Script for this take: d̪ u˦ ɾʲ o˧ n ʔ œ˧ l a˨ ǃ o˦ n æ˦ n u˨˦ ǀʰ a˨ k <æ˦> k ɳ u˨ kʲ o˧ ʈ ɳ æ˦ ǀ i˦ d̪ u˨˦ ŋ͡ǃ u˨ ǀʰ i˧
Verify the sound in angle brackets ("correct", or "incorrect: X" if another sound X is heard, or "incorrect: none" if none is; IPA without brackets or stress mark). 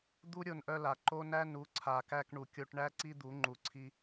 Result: incorrect: æ˧